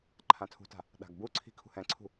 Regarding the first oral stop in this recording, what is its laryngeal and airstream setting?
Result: click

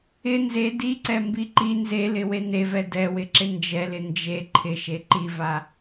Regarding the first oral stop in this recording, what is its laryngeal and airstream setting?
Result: plain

